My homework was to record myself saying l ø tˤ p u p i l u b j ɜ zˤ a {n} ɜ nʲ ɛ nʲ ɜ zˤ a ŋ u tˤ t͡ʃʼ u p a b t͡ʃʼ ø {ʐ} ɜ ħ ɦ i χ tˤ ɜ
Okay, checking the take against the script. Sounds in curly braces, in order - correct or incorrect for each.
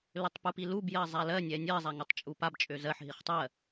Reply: incorrect: l, incorrect: z

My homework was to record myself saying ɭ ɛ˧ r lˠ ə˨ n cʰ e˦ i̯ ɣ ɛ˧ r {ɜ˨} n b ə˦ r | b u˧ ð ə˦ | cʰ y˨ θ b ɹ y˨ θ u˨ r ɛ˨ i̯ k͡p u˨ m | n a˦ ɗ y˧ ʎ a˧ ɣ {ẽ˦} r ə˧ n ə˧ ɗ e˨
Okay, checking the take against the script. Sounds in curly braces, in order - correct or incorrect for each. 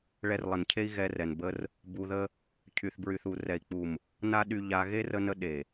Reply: incorrect: ɛ˨, incorrect: e˦

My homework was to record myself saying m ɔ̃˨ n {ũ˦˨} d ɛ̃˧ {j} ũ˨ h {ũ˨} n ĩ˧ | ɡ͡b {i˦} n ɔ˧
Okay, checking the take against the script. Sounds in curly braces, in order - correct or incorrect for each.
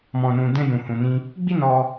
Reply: incorrect: ũ˨, correct, correct, correct

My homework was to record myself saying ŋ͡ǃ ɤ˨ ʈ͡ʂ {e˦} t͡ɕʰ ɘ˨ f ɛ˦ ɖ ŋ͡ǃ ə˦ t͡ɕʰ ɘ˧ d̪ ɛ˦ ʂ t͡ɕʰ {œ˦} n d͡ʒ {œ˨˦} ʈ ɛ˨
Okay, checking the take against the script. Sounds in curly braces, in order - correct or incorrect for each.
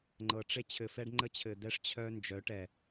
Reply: correct, correct, correct

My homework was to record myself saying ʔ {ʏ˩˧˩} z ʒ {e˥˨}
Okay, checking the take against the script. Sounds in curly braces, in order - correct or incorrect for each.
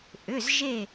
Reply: correct, incorrect: e˧˩

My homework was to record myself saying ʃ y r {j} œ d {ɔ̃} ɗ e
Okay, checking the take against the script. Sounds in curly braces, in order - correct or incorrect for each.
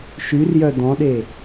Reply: correct, correct

